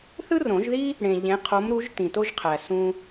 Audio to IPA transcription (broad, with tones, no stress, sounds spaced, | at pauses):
θ ɯ˥ r õ˨˩˦ ʒ ð i˥ | ɽ ẽ˨ ʎ ẽ˨˦ qʰ o˨˦ m ɾ u˨˦ ʒ t ĩ˨ t o˥ ʒ qʰ æ˨ s ũ˥